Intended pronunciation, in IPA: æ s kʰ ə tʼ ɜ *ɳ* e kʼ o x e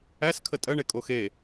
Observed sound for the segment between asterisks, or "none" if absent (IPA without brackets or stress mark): ɳ